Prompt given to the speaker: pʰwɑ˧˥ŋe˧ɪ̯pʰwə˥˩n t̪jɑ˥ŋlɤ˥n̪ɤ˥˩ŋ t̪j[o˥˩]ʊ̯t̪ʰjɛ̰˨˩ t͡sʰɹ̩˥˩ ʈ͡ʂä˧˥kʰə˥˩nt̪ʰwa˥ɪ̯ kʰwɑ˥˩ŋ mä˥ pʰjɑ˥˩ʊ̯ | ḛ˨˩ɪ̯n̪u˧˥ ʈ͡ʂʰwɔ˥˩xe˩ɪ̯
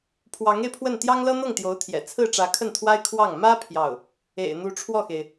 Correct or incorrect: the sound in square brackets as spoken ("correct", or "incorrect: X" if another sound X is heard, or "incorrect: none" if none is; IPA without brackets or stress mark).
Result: incorrect: o˧˥